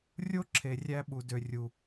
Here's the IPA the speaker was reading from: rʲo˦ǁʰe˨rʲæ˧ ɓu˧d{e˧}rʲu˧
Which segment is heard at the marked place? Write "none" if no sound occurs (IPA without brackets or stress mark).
ø˧